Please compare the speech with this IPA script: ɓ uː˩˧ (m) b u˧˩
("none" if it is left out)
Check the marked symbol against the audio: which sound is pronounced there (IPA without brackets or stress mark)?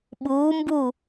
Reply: m